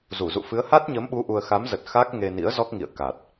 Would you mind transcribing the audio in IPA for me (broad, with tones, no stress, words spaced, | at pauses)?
zu˧˩zṵ˧˨ fɨ˨˦ə̯ha˦˥t̚ɲəː˨˦mɓu˨˦ ʔu˧ə̯ xa˨˦mzə˨˩t̚ xa˦˥k̚ ŋe˧nḭ˧˥ə̯ zɔ˦˥k̚ŋḭ˧˨ə̯ ka˨˩t̚